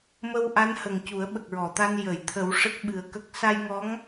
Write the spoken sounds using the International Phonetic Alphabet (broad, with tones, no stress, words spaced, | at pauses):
mə˧wʔa˧˥nhə˨˩ŋ cu˨˩˦ə̯ɓə˨˩k̚ɹɔ˨˩˨t̪a˧n jə˨˩˨jt̪ʰə˨˩˦w ʂə˦˥k̚ɓɨ˨˩ə̯kə˦˥k̚ sa˧jŋɔ˧˥ŋ